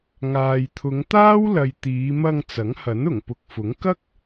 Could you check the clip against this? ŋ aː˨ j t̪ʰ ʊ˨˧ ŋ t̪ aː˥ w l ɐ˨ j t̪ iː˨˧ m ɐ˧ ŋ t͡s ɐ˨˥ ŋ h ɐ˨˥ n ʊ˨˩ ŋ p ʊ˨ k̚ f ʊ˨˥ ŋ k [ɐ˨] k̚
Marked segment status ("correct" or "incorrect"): incorrect